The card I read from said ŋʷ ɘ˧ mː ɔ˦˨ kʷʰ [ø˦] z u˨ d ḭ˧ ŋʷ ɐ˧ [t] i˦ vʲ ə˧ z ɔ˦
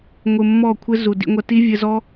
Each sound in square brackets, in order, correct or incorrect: incorrect: ɘ˦, correct

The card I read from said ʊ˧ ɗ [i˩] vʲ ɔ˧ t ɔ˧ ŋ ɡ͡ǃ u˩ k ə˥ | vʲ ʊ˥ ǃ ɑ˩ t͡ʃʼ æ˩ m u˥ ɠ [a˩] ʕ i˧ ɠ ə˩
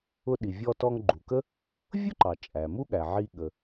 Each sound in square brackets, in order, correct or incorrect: correct, incorrect: æ˩

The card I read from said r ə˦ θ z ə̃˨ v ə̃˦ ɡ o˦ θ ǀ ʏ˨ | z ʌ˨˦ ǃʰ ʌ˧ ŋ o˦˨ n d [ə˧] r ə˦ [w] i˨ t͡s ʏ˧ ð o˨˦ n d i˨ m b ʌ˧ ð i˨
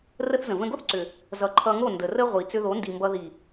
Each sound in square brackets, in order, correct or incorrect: incorrect: ə˨, incorrect: ʁʷ

